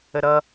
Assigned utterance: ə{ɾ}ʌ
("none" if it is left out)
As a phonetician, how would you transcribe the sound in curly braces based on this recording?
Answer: ɾ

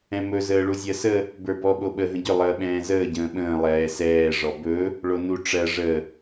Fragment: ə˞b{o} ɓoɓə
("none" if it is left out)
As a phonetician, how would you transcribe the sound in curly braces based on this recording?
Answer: ɔ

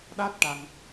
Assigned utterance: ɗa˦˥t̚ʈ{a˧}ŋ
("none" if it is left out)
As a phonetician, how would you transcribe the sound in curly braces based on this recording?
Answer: a˧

